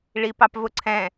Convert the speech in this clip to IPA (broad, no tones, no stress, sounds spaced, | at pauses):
ɭ i p ɑ p v ʊ ǀʰ ɛ̃